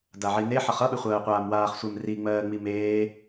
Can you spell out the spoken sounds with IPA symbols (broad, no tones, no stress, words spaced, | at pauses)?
daʕineħʌχ ʌɓɪχʷɜːqʷaːm waːχsʷɛmri ŋ͡mɜːŋ͡mimeː